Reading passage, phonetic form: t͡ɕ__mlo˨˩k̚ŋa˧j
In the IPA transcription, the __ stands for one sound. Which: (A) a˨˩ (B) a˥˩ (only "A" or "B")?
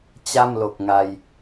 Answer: B